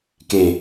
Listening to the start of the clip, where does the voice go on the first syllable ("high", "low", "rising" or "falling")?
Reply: low